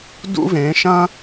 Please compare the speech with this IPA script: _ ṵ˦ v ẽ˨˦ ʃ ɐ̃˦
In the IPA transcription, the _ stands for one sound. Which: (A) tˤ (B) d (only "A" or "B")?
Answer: B